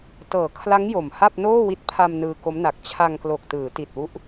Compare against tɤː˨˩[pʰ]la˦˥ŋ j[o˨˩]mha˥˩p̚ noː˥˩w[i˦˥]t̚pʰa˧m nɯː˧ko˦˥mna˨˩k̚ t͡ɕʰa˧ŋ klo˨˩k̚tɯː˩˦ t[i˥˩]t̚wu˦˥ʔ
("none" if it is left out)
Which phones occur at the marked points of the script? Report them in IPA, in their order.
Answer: kʰ, o˨˩, i˦˥, i˨˩

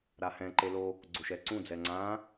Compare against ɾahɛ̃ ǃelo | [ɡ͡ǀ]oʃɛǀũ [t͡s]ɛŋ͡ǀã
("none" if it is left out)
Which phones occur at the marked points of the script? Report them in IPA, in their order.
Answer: ɡ͡ǀ, d͡z

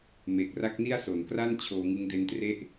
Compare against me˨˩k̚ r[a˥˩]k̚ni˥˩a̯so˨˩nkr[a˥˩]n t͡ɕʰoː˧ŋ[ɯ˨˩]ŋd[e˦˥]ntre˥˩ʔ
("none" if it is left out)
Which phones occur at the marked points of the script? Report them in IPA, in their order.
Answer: a˦˥, a˥˩, ɯ˦˥, e˦˥

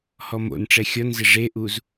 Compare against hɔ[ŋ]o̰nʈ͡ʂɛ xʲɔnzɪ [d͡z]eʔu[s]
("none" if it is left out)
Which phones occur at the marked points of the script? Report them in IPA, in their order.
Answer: m, ʐ, z

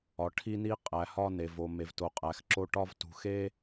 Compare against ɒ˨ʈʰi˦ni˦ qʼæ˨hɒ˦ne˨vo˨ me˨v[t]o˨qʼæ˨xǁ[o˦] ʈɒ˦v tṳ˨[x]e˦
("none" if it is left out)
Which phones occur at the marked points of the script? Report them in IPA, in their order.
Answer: t, o˦, x

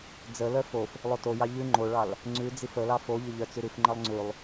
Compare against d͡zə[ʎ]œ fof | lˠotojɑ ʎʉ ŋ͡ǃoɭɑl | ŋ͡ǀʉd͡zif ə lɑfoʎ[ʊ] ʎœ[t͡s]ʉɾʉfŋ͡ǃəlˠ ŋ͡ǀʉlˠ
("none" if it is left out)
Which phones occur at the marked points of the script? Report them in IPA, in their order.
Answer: l, ə, t͡s

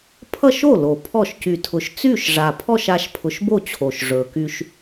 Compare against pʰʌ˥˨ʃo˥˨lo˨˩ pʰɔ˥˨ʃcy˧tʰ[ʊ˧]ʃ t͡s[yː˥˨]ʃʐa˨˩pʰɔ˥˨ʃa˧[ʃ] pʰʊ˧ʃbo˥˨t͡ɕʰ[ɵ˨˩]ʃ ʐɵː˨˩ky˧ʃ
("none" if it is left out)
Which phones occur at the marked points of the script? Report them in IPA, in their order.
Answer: ʊ˧, yː˥˨, ʃ, o˨˩

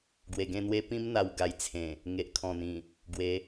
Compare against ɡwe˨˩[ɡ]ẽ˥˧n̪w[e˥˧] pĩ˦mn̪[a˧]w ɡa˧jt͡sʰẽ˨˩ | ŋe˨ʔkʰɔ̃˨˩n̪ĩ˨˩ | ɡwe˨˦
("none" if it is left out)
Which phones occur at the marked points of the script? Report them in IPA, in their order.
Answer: ɡ, e˦, a˧

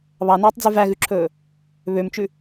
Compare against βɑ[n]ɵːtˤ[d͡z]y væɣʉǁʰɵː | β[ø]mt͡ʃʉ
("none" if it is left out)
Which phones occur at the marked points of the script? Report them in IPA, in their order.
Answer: n, d͡z, ø

